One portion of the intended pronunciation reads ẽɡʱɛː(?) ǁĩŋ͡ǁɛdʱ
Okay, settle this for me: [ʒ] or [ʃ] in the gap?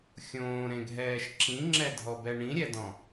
ʃ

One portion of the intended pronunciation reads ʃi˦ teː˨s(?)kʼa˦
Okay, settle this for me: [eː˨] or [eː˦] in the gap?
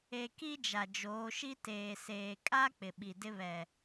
eː˨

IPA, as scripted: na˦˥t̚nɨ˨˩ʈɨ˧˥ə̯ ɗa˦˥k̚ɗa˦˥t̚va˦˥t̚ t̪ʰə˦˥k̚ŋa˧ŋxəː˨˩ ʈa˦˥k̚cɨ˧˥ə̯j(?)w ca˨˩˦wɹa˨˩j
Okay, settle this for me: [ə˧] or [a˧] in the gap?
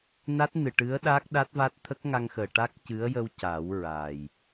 ə˧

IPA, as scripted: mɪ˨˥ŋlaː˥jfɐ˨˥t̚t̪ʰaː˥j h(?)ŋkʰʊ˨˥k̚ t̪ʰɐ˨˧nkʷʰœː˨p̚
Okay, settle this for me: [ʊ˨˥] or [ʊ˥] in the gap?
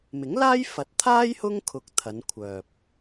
ʊ˥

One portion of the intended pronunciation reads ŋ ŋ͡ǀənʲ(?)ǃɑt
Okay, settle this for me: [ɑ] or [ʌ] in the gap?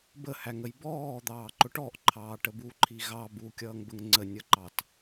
ʌ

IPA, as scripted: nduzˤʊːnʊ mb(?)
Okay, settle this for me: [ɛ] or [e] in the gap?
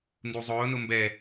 ɛ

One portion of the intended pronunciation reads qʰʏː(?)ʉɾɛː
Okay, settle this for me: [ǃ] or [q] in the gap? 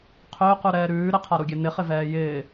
q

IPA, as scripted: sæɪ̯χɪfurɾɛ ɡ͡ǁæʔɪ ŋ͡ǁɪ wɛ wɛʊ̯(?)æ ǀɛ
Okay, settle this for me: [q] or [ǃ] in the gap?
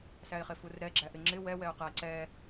q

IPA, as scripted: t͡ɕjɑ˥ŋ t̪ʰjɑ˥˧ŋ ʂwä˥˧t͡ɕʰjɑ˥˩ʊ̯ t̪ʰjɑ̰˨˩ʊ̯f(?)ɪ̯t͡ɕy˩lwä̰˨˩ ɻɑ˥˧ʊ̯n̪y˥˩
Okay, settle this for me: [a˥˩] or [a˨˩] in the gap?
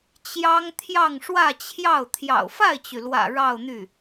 a˥˩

